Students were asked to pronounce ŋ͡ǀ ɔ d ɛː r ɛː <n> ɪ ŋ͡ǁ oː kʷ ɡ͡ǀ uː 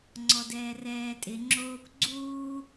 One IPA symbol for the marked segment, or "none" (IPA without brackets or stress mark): tʼ